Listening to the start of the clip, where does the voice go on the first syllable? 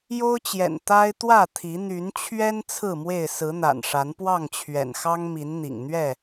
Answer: high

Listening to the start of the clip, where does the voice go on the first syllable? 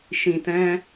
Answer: low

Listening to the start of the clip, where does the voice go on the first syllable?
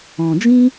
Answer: low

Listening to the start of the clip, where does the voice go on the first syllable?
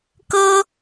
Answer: high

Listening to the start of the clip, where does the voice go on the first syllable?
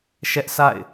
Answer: high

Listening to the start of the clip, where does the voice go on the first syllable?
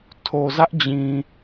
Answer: low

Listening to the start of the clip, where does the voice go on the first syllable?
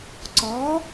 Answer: rising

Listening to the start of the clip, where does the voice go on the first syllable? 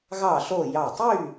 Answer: falling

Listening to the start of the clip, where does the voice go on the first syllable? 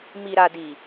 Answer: low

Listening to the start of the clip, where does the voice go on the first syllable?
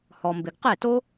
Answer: low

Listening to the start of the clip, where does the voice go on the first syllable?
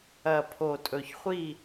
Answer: low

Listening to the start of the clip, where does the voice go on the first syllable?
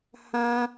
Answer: high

